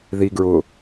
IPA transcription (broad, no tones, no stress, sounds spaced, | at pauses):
ð i ɡ ɹ ʊ